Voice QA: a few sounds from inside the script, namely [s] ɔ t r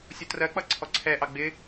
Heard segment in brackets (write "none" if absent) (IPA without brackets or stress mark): sʲ